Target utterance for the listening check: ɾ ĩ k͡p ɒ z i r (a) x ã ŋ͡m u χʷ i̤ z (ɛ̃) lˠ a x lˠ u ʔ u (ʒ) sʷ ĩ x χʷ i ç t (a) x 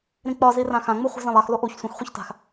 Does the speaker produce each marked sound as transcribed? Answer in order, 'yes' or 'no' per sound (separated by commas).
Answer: no, no, no, no